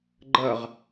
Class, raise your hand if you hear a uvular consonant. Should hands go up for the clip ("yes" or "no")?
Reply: yes